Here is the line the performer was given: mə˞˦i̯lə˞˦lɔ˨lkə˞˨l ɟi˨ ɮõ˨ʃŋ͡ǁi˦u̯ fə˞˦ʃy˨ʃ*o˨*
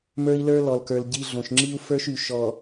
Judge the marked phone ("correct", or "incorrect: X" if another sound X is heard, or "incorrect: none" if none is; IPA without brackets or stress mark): incorrect: ɔ˨